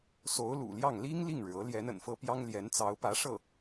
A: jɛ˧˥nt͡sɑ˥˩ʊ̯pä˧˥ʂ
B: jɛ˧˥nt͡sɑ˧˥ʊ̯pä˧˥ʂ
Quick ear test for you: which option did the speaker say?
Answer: B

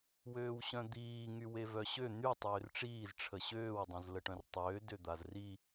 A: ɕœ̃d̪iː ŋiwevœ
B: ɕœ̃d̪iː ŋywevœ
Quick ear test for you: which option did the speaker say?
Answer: B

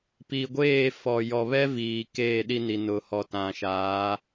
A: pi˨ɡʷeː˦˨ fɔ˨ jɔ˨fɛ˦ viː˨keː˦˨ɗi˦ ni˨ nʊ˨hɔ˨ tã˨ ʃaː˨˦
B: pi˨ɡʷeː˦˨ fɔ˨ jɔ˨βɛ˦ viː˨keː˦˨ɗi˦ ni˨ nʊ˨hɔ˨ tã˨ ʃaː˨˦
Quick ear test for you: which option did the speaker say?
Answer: B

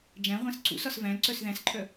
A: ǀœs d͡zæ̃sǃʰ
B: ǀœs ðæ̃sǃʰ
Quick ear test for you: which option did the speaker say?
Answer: B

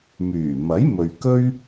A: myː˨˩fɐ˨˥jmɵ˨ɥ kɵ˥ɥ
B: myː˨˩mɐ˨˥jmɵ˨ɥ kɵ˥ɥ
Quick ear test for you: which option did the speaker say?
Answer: B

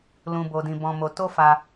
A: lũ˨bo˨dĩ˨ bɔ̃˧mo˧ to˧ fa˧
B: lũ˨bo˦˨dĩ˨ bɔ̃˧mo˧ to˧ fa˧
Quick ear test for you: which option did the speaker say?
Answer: A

